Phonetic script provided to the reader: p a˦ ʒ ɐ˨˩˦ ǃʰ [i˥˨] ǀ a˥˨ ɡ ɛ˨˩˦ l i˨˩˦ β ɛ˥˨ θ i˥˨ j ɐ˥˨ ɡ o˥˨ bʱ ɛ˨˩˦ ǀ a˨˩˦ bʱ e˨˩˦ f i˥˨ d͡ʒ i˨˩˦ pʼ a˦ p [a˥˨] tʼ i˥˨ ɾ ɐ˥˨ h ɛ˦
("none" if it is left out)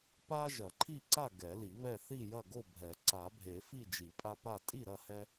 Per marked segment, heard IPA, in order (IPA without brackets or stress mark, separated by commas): i˥˨, a˥˨